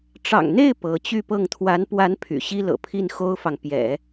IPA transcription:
ʈ͡ʂ ɑ̰˨˩ ŋ n̪ e˥˩ ɪ̯ p ɤ˧˥ t͡ɕ y˥˧ p ɤ˥˩ ŋ t̪ʰ w a˧˥ n p w a˧˥ n pʰ y̰˨˩ ɕ i˥ l ɤ̰˨˩ pʰ i˥˩ n x o˥ ʊ̯ f ɑ˨ ŋ p j ɛ̰˨˩˦

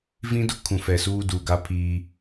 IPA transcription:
v ĩ˦ d ʊ˦ kʰ ũ˨ f ɛ˨ s uː˦ d uː˨ ɡ a˦ pʰ iː˦

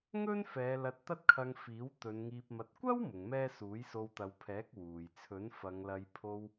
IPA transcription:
ŋ ɵ˥ n f ɛː˨˧ l ɐ˧ t̚ t̪ ɐ˥ t̚ kʰ ɐ˧ ŋ f iː˨˥ w t̪ ɵ˨˧ n ŋ iː˧ p̚ m ɐ˧ t̚ kʷ ɐ˥ w m ʊ˨˧ ŋ m ɛː˥ s uː˨˥ j s o˧ w t̪ ɐ˨˧ w pʰ ɛː˨˥ k̚ w uː˨ j t͡sʰ ɵ˨˥ n f ɐ˨˧ ŋ l ɐ˧ j pʰ o˧ w

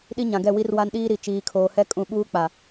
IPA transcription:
ɗ i˦ ɲ ã˨ ɡ ɛ˦˨ w i˦ r w a˦ n ɗ iː˦ ɾ i˨ t͡ʃ iː˨ kʰ oː˨ h ɛ˦ kʼ ũ˨ ɓ uː˦ k͡p a˨

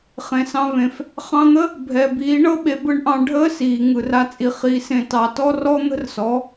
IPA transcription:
χ ẽ˨ s ɑ̃˧ v ẽ˨ f | χ ɑ̃˧ n̪ ə˦ | bʱ ɛ˨ b iː˨˦ ɳ ɤ˦ ɓ e˨˦ b ɯ˧ ɳ ʔ ɑ̃˧ ɖʱ əː˦ s iː˨ ŋ ɯ˨ r a˧ t͡sʼ i˨ χ i˨˦ s ẽ˧ t ɑ˨ t ɔ˦ r ɔ˦ n̪ ə̤˦ r s ɔ˨˦

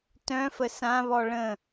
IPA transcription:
t œ̃ f ə s ã β ɔ ɭ ə̃

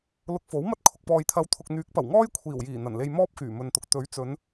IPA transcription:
l ʊ˧ k̚ f o˨˥ w m ɐ˥ t̚ kʰ ʊ˨ k̚ p ɔː˨ j t̪ʰ ɐ˨˧ w t̪ʰ ʊ˨ k̚ n̪ yː˨˥ k̚ p ɐ˨˩ w ŋ ɔː˥ j kʷʰ iː˨˩ w j iː˨˩ n̪ ɐ˨˩ n l e˧ j m ɔː˥ p̚ k yː˨˩ m ɵ˨ n t̪ ʊ˨ k̚ t̪ ɵ˨˥ ɥ t͡s ɵ˨˧ n

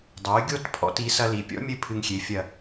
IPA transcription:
dˤ o˩˥ y̯ ɡʲ o˥ t pʰ ɔ̰˧ t i˩˥ s ɐ˧ l i˩ pʲ ɔ̰˥ mʲ ɘ˥˩ pʰ ɨ˧ ŋ xʲ e˩˥ fʲ ɐ˥˩

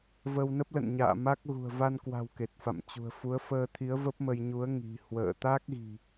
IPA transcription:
v ə˧ w n ə˦˥ p̚ l ə̰˧˨ n ɲ a̰ː˧˨ m a˦˥ k̚ ɣ ṳ˨˩ ə̯ v a˧ n k w a̤˨˩ w k e˨˩ t̚ f a̰˧˨ m t͡ɕ ṳ˨˩ ə̯ f u˨˦ ə̯ f əː˧ t̪ʰ i˨˦ ə̯ v ə˦˥ p̚ m ə˧ j ɲ u˨˦ ə̯ ŋ i̤˨˩ h w ə̰ː˧˨ t̪ a˦˥ k̚ ɣ i̤˨˩

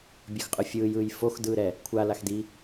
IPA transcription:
bʲ ɤ x qʼ ɯ fʲ ɯː j ɯː j f o x d ɯː ɾ ɛ | kʷʰ a l a x d i

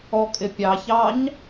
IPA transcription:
ɔ kʼ ɪ pʲ ɑ ç ɑ ɲ

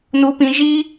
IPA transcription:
n u˥ p ĩ˥ ʒ i˥

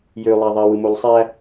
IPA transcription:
j ø lˠ æ ðˤ æ w ɯ m o l sˤ æ

